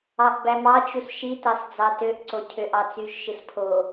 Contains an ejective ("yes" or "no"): no